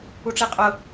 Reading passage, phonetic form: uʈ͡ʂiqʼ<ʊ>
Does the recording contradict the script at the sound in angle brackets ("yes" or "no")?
no